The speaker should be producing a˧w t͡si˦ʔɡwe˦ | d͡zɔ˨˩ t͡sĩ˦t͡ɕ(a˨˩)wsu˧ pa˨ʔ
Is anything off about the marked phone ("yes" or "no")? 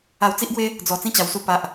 no